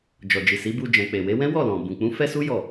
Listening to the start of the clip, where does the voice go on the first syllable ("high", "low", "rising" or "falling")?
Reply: low